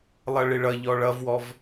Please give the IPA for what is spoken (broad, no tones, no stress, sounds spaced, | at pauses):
lˠ ʌ ɭ ɪ ɭ ʌ ʎ ɔ ɭ ʌ v w ɔ v